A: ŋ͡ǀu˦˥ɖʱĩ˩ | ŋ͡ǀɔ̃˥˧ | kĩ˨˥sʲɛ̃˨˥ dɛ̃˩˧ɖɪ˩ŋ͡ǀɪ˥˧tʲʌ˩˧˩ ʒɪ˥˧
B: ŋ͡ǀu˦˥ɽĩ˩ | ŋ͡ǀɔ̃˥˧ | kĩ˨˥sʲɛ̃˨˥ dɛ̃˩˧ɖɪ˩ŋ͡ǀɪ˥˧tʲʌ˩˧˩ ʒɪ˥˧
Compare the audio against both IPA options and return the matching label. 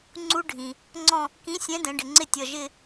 A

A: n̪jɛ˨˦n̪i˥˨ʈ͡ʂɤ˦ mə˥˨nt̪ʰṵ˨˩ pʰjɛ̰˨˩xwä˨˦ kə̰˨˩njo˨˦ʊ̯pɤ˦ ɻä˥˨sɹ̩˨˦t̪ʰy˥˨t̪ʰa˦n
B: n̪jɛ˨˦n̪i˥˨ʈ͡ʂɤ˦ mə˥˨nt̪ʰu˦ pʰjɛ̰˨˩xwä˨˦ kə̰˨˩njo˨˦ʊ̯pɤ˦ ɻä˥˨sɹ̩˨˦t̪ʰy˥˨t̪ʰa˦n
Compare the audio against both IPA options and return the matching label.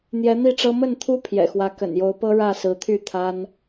B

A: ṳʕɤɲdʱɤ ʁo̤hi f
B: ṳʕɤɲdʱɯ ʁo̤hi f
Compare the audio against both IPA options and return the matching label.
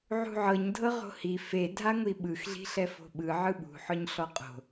A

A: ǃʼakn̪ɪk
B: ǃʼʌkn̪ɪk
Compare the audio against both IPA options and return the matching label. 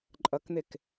B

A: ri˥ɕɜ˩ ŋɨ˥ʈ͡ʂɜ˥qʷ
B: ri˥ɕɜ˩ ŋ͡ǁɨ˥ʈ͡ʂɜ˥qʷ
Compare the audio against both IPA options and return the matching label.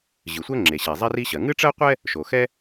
A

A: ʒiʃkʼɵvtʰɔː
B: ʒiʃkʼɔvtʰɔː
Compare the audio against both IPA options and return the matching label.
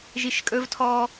A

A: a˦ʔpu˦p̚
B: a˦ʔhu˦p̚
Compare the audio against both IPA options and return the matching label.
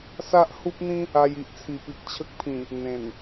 B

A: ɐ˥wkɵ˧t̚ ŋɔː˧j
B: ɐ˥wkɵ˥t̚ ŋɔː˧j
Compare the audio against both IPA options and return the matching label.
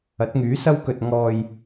A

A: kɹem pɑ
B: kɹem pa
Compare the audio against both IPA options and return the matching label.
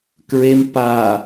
B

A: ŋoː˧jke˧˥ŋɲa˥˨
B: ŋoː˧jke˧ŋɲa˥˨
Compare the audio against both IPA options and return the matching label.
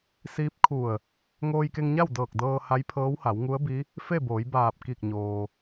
B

